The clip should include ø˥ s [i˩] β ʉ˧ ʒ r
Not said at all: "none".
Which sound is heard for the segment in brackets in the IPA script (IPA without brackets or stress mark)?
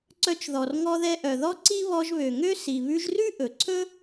i˩